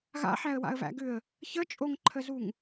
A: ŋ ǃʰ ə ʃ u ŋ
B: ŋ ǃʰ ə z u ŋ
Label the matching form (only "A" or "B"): B